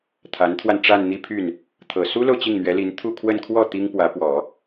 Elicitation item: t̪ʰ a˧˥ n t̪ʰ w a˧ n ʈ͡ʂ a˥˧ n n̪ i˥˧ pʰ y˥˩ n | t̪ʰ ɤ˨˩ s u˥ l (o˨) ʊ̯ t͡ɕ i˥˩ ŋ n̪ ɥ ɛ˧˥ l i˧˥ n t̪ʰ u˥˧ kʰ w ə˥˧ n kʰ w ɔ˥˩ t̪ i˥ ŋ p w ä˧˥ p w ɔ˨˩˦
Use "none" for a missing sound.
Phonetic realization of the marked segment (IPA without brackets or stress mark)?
o˨